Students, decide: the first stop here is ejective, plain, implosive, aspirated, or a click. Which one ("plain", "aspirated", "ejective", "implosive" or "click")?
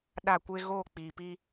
implosive